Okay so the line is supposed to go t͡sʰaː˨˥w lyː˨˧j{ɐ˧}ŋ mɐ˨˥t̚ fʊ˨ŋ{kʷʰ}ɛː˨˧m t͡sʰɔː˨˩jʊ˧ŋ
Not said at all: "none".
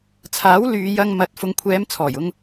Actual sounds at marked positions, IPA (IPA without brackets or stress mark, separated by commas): ɐ˧, kʷʰ